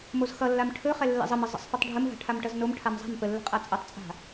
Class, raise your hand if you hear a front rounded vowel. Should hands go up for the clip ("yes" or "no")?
no